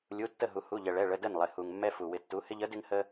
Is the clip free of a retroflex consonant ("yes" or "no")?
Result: no